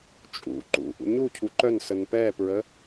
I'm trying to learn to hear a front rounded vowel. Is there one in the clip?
yes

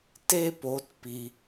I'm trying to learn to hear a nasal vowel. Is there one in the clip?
no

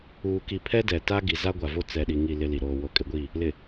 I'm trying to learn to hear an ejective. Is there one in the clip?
yes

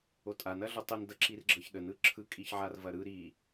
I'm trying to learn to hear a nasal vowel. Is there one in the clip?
no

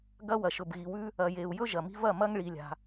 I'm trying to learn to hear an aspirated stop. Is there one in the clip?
no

